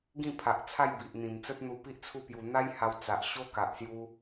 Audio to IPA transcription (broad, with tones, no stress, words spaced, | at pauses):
ɡĩ˥˧pʰa˨ʔt͡sʰa˥˧j bi˨ʔn̪ĩ˨˩m t͡sə˦t̚n̪u˧pi˦ʔ t͡sʰu˥˧pju˧ n̪a˦jha˧wt͡sa˨ʔ ɕo˦ka˨ʔsju˧